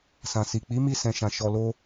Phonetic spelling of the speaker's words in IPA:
s ã˨ s i˨ k͡p i˨˦ m i˧ s ɛ̃˨ ʃ ã˨ ʃ ɔ˧ l o˦

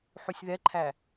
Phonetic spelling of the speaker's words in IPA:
ħ u sʲ ð ɛ ǃʰ æ

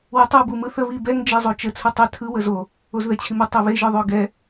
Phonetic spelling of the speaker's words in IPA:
w ə tˤ u b u m ɯ θ ə β i b ɛ ŋ d͡ʒ e zˤ o t͡ʃ ə t͡sʰ ɯ tˤ ɛ tʰ ɯ w ə z o | o z ð ɛ t͡ɕʰ i m ə tˤ ø β e ʒ ɯ ðˤ ø ɡ ɛ

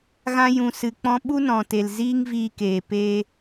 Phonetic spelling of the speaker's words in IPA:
ɣ ã˧ j ũ˨ s ɨ˨ k͡p ɔ̃˧ ɓ u˦ n ɔ̃˨ t e˨ l z iː˦ ŋ v iː˧ k eː˨ p e˧

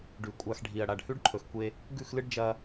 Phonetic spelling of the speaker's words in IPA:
ɖ ʉ˨ kʷʼ a˧ x ɖʱ i˨ ɐ̯ ɽ a˨ ɖ h ʉ˦ ɖ ǃʰ ɵ˨ x kʷ e˧ | ɡ ʉ˦˨ x l ɨ˦ ɖ d͡ʒ ɐ˧

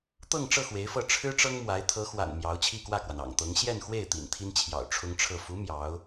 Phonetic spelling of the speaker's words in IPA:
t̪ ɤ˥˧ ŋ ʈ͡ʂ ɤ˥˩ x w e˧˥ ɪ̯ f ɤ˥˩ ʈ͡ʂʰ ɻ̩˥ ʈ͡ʂ ɤ˥ ŋ m w a˧˥ ɪ̯ t̪ʰ ɤ˧˥ x w a̰˨˩ n m j ɑ˧˥ ʊ̯ t͡ɕʰ i˥˧ k w ä˥˩ k w a˩ n ɑ̰˨˩ ŋ t̪ ɤ˧˥ ŋ ɕ j ɛ˥˧ n x w e˥˩ ɪ̯ t̪ ḭ˨˩ n t̪ʰ i˥ n t͡ɕʰ j ɑ̰˨˩ ʊ̯ ʈ͡ʂʰ ʊ˥ ŋ ʈ͡ʂʰ ɤ˥˩ f u˧˥ m j ɑ˧˥ ʊ̯

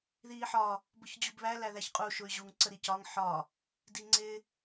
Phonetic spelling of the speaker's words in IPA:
ð iː ħ ɒ | b ʊ ç d͡ʑ u b β æ l æ ð æ ç qʼ u ʃ ʊ y̯ ʑ u ŋ ǀ ə ɾ i c ɒ ŋ ħ ɒ | d i ŋ͡ǀ ɪ

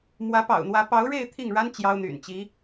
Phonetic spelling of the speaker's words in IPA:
m w ä˧˥ p ɑ̰˨˩ ʊ̯ n̪ w ä˧˥ p ɑ˧˥ ʊ̯ ɻ e˥˧ ɪ̯ t̪ʰ i˥˩ ŋ ɻ a˥ n t͡ɕ j ɑ˥ ʊ̯ n̪ y̰˨˩ n t͡ɕ i˧˥

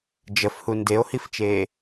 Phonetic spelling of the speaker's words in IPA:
d͡ʒ ə f h u n d e o̯ h i f t͡ʃ eː

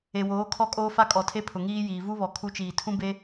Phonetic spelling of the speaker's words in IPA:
e˨ w oː˨˦ kʰ ɔ˦˨ kʼ oː˦ f a˦ kʼ ɔ˨ tʰ e˦ pʰ ʊ˨ ŋ iː˦ j iː˨ v u˦ β ɔ˨ kʰ u˦ t͡ʃ iː˨ tʰ ũ˦ b e˦

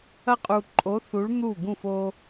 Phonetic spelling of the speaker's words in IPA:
ɐ˦ qʼ u˨ ǃʼ o˨˥ θ u˨˥ ɭ n̪ u˥˩ ɡ ũ˥˩ f o˦

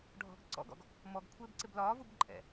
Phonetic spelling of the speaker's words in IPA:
ɖʱ ɔ̤ ɡ ǀ ɔ̰ ɡ ɔ̰ ɡ | m ɔ ɡ kʷʰ ɪː b ǀ ɪ b l ɒː v u b ǃʼ ɛ̰

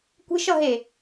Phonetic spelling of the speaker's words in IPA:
kʷ e̤ ʃ ʌ ɦ e

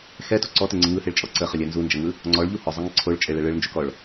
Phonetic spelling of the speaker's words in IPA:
x ɛ t u ǀ ɔ t e ŋ͡ǀ ɯ ŋ ɯ h e ɭ t͡ʃʼ ɔ ǀ ə χ ə lʲ ɛ n z u n d͡ʒ ə ŋ ɯ | ŋ͡ǀ ɔ ɭ ʎ u h ɔ zˤ ɯ ŋ ə ǀʰ o ɭ t͡ʃʼ e ɭ ɛ ɭ ɯ ɭ n d͡ʒ u k ɔ ɭ

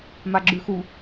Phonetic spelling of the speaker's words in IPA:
m a ɡ͡ǁ ʉ x u

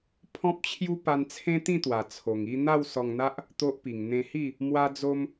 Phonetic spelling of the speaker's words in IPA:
pʰ ɔ̃˦ p̚ t͡ɕʰ j u˦ p a˧ n t͡sʰ ẽ˦ t̪ ĩ˥˧ t̪ w a˨˩ t͡sʰ o˨˩ ŋ i˥˧ n̪ a˥˧ w s ɔ˧ ŋ n̪ a˦ ʔ | t̪ o˦ ʔ p i˨˩ ŋ n̪ ẽ˧ h i˥˧ | m w a˦ d͡z o˦ m

